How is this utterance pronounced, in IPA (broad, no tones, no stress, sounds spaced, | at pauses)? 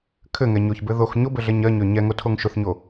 kʰ ɘ ŋ ɛ ɲ o ç b ɘ ð o x ɲ o b ɘ ɮ ɛ ɲ ɜ ɲ ø ɲ ɛ ŋ o tʰ o ŋ ʃ ʊ θ ɲ o